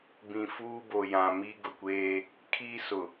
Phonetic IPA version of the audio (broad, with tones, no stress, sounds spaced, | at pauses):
b ĩ˨ f uː˦ b o˨ j ã˨ m i˦ ɡ ʊ˨ kʷ eː˦ | kʰ i˦ s ʊ˨